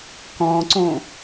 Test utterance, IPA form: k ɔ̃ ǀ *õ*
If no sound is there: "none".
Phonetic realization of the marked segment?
õ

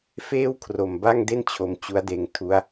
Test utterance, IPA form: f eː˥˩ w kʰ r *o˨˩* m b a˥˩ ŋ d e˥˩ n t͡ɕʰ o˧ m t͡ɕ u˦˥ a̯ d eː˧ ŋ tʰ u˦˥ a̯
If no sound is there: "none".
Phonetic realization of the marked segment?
o˨˩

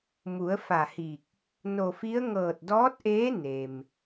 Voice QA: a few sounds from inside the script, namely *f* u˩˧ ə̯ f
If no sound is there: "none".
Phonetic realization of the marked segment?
m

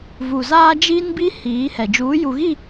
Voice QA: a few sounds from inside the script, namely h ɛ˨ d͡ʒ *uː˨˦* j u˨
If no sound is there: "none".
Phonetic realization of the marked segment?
uː˨˦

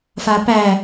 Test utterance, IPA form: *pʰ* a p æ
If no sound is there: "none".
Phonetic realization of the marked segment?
f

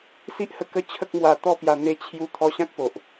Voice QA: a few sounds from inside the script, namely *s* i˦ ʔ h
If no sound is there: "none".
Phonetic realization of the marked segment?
s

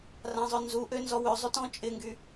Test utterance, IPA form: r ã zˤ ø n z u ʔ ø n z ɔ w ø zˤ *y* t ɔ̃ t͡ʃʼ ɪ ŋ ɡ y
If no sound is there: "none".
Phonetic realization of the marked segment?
y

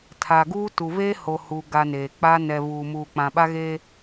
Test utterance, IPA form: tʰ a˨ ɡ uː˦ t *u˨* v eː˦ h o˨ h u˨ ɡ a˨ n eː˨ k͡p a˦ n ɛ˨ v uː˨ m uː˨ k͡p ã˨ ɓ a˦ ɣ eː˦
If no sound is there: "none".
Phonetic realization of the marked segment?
u˨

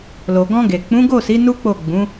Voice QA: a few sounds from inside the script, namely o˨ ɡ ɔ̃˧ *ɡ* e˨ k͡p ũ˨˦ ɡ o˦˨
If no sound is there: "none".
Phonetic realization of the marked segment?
ɡ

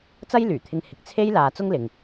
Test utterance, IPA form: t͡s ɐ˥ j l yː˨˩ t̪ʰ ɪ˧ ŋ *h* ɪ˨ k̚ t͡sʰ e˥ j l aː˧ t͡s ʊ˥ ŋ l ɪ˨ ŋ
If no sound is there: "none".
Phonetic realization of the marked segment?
h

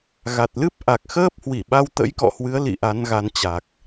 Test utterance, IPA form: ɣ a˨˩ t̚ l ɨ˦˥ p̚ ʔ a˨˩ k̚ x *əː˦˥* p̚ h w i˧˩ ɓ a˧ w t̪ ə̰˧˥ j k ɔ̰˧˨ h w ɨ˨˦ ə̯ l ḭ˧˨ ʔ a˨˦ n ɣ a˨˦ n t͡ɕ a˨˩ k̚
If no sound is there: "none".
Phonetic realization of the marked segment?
əː˦˥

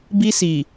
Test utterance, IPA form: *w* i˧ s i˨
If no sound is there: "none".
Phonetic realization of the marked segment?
b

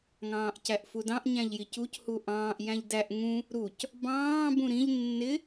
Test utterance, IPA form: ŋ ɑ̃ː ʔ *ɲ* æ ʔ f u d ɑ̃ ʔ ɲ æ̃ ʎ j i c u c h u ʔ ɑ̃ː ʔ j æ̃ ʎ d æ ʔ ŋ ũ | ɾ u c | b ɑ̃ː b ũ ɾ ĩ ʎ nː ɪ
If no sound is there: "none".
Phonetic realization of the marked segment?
c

